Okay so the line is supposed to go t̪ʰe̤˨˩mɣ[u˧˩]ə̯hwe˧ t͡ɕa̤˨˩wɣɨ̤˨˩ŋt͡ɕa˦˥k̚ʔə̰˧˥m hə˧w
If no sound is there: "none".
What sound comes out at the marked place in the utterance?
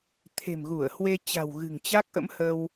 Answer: u˧˩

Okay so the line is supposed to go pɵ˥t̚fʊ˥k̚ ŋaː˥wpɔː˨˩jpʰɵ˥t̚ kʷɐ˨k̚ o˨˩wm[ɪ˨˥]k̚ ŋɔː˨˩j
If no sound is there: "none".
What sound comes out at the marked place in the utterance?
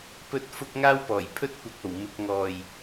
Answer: ɪ˨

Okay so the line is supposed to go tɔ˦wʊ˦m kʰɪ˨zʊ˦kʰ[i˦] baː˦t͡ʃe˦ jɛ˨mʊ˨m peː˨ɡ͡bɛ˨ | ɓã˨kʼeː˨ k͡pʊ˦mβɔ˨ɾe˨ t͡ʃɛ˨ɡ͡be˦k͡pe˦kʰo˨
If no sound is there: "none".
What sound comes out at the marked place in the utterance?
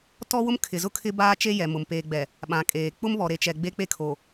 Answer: ɪ˦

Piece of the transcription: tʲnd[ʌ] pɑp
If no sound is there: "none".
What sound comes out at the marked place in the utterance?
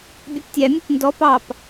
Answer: ɔ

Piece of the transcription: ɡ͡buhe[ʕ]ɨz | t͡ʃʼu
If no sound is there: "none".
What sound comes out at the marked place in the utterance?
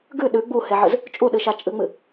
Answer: ʕ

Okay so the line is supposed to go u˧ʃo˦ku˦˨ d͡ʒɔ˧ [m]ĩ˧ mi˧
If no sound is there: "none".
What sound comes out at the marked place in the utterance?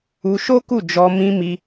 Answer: m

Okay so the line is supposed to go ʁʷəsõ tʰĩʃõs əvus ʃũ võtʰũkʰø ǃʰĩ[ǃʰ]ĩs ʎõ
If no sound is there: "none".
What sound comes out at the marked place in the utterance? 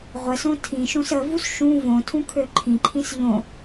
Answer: ǃʰ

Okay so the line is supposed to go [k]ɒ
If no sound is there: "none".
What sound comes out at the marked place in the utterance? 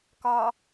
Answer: k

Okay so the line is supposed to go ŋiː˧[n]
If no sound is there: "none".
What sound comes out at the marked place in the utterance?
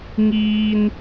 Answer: n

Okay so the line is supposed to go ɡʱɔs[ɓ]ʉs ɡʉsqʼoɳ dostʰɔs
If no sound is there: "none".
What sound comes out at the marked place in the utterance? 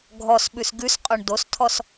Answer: ɓ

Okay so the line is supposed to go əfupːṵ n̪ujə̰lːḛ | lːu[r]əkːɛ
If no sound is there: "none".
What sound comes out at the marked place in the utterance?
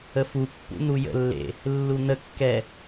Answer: n̪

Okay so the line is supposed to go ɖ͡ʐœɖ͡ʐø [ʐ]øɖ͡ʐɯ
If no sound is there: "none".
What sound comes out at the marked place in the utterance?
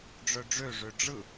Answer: ʐ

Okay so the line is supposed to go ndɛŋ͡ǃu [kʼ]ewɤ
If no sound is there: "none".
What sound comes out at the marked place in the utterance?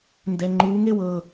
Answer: ŋ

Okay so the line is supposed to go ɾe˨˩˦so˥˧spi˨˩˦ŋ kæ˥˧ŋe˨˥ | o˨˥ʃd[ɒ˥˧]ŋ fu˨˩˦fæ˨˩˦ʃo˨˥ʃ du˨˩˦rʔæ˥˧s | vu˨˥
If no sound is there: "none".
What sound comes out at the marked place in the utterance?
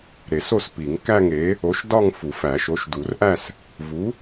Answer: ɒ˥˧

